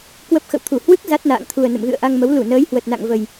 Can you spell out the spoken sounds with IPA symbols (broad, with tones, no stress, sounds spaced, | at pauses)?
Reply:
k w ə˦˥ p̚ x ə̰˧˨ w t̪ʰ u˧˩ h w ɨ˦˥ k̚ z a˦˥ t̚ n a̰ː˧˨ ŋ t̪ʰ u˨˩ ə̯ n ə̰˧˨ m ɣ ɨ̰˧˨ ə̯ ʔ a˧ ŋ m ə˨˦ w l u˧˩ n əː˨˦ j h w ə˨˩ t̚ n a̰˧˨ ŋ v ə˨˩ j